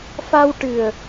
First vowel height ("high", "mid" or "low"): low